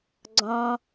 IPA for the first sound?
ɡ͡ǀ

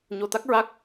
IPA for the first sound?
ɲ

